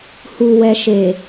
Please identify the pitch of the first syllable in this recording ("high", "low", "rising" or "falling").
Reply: low